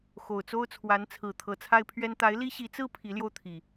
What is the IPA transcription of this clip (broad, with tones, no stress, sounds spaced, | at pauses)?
x o˨˩ ʊ̯ t͡s o˦ ʊ̯ t͡sʰ w a˨˦ n t͡sʰ ɹ̩˨˩ t̪ʰ ɤ˨˦ t͡sʰ a˦ ɪ̯ pʰ ɥ ɛ˦ n t̪ a˨˦ ɪ̯ l i˦ ɕ i˨˦ t͡s ɹ̩˦ pʰ i˨˦ l j o˧ ʊ̯ t̪ʰ i˨˩